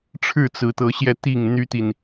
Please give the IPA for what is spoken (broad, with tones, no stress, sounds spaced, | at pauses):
ʈ͡ʂʰ ɻ̩˥˨ t͡s ɹ̩˨˦ t̪ ɤ˨˦ ɕ j ɛ˧ t̪ i˥˨ ŋ n̪ y˦ t̪ i˨ n